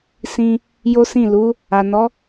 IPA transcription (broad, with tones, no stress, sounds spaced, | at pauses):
s ĩ˧ | j o˦ s ĩ˦˨ l u˨˦ | a˨ n ɔ˨˦